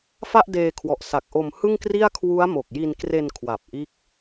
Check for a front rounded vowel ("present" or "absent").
absent